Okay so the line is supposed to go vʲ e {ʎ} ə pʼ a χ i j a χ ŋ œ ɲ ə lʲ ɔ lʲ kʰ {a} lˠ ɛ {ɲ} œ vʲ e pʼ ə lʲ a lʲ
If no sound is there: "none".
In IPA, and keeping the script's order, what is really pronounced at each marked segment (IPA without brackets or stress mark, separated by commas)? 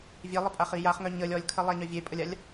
lˠ, ə, ɲ